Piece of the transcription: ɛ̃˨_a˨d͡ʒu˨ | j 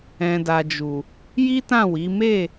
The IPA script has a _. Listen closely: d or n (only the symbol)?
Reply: d